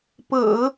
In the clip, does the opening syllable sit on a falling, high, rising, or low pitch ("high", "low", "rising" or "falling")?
low